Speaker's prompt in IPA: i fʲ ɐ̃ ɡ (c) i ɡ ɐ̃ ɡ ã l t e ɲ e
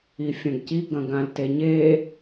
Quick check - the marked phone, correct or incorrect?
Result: correct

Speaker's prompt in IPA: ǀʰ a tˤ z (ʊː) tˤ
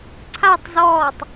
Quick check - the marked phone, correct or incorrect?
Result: incorrect: ɔː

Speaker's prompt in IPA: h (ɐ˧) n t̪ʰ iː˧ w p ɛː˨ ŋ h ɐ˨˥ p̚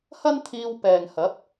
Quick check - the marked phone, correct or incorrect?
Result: incorrect: ɐ˥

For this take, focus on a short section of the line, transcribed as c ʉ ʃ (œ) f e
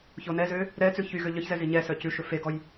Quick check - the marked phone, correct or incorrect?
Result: incorrect: ɵ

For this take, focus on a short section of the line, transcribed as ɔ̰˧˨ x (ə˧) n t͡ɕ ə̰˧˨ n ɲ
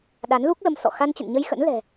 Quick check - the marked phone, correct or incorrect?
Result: incorrect: a˧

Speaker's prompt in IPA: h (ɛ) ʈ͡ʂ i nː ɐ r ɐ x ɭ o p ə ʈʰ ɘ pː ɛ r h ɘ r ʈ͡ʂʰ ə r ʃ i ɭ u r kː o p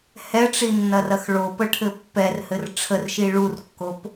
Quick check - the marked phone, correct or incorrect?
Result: correct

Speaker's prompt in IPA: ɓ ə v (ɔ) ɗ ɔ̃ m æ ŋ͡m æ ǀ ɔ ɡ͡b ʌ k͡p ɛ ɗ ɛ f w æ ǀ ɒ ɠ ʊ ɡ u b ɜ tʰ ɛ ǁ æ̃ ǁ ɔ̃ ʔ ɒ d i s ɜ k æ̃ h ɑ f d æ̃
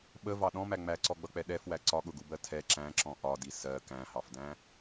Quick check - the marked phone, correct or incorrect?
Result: incorrect: ɑ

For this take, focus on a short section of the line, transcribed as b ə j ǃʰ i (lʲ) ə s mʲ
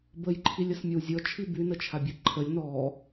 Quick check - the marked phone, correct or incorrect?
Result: correct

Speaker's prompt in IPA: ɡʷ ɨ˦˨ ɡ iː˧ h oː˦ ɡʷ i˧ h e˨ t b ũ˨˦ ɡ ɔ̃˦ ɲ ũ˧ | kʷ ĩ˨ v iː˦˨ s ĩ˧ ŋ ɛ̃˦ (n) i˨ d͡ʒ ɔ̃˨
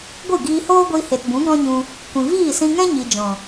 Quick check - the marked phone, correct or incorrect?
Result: incorrect: ɲ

